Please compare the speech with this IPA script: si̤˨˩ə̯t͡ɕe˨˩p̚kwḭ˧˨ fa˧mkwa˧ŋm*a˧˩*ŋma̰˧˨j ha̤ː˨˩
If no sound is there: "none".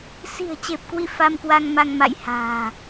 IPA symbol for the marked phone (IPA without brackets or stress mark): a˧